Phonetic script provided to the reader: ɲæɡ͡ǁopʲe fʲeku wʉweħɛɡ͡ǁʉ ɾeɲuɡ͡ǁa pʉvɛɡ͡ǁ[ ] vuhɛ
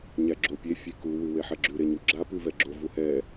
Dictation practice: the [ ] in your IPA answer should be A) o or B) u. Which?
A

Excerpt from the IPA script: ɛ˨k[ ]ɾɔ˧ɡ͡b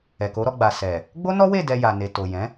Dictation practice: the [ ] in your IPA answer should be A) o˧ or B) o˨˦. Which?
B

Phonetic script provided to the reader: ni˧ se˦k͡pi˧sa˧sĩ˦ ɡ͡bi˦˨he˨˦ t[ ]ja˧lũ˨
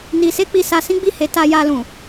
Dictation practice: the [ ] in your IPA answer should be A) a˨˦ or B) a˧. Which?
B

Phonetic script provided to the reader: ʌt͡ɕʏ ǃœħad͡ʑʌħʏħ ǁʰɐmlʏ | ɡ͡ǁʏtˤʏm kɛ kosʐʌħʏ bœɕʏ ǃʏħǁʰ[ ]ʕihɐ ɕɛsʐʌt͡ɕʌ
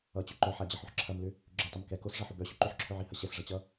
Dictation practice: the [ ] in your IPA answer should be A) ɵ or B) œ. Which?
B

